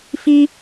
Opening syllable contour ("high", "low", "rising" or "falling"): high